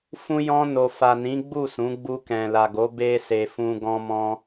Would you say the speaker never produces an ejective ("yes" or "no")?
yes